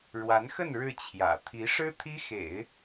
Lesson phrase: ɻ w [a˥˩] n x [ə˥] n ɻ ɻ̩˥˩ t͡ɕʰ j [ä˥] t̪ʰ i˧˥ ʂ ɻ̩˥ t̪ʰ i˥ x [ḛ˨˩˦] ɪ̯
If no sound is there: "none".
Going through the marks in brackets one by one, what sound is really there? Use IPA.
a˧˥, ə˥˧, ä̰˨˩, ḛ˨˩˦

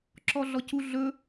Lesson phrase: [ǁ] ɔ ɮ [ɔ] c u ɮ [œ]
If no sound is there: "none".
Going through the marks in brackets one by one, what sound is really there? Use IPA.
ǁ, ɔ, ɵ

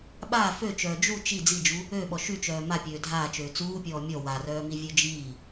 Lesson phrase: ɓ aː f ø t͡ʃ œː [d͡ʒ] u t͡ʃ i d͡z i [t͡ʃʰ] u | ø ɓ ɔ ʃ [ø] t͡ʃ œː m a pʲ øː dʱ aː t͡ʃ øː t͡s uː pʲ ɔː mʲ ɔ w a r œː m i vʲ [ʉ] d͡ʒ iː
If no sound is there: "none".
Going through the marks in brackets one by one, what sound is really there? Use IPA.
d͡ʒ, d͡ʒ, y, ø

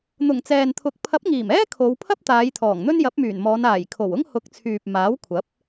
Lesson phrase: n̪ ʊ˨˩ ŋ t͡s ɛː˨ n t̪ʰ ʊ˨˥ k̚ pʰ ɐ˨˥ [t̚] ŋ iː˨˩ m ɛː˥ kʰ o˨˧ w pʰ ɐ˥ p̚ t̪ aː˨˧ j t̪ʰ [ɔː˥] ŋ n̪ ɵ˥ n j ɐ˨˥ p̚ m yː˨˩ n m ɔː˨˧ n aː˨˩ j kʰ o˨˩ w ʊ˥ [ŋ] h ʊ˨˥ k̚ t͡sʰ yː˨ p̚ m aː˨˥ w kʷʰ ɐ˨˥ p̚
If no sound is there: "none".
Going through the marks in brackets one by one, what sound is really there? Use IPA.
p̚, ɔː˨˩, ŋ

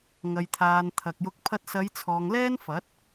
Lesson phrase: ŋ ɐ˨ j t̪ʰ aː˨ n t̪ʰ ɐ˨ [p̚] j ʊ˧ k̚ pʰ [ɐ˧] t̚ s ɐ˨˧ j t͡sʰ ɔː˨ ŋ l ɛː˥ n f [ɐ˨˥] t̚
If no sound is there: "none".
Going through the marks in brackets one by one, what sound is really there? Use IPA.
k̚, ɐ˧, ɐ˨˥

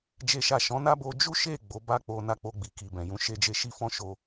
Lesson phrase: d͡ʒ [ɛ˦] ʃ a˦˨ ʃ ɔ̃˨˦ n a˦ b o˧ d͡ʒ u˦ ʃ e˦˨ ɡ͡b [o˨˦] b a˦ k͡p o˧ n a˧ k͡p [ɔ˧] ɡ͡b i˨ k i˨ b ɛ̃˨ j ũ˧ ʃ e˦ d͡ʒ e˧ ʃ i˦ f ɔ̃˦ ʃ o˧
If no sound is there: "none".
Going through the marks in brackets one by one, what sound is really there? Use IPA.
e˦, o˨˦, o˧

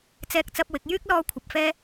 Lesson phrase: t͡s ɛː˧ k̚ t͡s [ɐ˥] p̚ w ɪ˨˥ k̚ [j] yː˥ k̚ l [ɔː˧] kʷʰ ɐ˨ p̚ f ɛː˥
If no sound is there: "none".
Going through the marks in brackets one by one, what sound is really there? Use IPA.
ɐ˧, j, ɔː˧

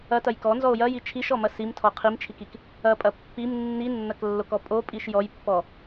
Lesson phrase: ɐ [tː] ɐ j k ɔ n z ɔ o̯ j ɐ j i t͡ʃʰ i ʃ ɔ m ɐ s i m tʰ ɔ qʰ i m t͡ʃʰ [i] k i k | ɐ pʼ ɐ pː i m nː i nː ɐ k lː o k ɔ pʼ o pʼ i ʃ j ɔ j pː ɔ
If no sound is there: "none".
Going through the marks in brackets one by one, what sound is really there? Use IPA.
t, i

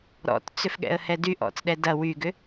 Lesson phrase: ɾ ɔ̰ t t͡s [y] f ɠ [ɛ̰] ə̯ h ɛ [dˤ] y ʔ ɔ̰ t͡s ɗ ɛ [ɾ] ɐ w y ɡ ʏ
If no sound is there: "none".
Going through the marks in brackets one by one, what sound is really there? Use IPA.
ʏ, ɛ̰, d, d

